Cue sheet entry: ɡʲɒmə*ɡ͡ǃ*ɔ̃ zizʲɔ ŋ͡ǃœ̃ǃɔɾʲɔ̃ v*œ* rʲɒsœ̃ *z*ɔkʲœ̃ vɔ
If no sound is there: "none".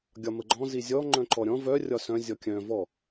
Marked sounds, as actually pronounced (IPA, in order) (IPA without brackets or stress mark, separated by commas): ɡ͡ǃ, œ, zʲ